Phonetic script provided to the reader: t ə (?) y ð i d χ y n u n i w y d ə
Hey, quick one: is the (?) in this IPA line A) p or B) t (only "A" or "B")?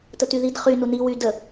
B